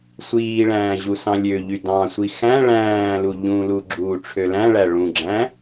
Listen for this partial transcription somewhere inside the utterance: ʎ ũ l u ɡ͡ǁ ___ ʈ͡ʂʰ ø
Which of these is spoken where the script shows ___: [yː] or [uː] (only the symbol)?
uː